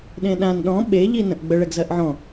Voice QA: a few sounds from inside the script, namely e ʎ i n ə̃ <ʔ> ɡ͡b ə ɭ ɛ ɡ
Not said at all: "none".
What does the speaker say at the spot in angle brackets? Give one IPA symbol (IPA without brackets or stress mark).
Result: ʔ